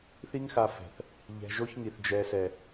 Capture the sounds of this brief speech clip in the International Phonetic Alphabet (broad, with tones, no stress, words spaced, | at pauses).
θi˦ŋxa˧fɛ̤˨θ | ʎɛ̤˧ʒo˦çŋi˨θ d͡ʒɛ˨sɛ˨